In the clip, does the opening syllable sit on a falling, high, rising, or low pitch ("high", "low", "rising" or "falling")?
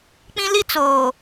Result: high